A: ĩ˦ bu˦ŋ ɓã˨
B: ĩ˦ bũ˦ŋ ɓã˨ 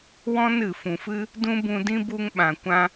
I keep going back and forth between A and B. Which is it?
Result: A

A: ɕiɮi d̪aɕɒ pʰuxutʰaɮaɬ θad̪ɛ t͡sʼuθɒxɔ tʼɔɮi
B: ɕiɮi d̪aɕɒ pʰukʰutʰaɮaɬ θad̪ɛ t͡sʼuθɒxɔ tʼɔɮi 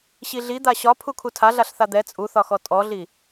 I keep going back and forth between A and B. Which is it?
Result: B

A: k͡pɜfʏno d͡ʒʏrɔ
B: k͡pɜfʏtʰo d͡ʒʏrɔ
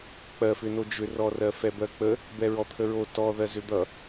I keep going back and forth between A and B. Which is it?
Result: A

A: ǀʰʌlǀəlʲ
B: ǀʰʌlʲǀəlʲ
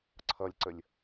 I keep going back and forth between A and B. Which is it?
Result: B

